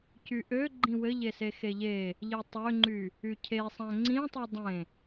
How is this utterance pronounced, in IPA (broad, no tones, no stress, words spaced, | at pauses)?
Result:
cyʔø ɡ͡ǃĩwɘʎese xeʎe | ʎetˤøŋ͡ǃy | ycʰesˤæ̃ ŋ͡ǀĩtˤi dˤẽ